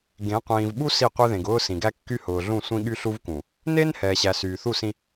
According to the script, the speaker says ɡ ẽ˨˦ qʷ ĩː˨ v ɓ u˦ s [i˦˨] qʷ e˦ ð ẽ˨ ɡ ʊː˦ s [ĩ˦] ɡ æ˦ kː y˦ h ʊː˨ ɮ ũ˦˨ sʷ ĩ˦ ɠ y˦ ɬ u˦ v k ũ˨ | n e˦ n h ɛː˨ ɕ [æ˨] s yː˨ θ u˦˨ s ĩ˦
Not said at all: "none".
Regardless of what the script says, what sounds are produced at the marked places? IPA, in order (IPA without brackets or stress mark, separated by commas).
i˦˨, ĩ˨, æ˨